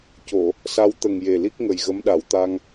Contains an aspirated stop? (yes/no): no